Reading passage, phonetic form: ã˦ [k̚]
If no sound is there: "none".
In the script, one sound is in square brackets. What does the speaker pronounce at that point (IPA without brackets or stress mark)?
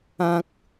k̚